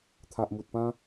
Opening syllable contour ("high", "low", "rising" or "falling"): low